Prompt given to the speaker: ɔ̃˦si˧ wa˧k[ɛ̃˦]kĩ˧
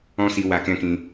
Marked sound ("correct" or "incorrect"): correct